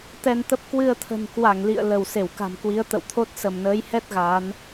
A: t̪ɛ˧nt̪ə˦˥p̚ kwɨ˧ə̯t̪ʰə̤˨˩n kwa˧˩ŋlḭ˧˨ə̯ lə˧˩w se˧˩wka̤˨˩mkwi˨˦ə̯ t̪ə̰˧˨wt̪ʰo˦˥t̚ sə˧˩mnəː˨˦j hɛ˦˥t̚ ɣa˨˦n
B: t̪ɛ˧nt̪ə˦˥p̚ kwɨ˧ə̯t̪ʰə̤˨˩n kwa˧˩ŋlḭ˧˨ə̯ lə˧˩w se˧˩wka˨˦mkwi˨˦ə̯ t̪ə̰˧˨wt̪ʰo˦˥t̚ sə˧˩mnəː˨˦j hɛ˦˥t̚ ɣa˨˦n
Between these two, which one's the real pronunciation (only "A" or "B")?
A